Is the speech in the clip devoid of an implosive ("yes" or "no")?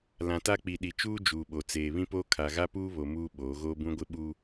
no